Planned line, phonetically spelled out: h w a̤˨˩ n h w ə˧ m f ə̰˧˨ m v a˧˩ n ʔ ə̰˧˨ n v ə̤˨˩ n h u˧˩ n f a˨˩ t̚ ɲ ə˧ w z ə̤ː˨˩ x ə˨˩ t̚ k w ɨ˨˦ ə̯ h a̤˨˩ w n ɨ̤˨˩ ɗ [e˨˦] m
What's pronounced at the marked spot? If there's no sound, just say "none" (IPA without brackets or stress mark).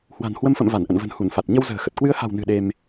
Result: e˧